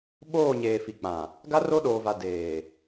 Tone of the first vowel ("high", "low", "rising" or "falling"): falling